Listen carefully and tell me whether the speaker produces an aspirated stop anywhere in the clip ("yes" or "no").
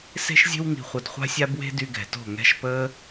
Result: no